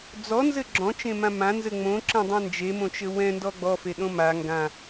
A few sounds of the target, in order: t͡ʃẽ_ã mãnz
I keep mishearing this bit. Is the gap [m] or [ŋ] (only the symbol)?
m